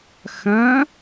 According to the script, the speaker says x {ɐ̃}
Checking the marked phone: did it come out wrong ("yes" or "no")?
no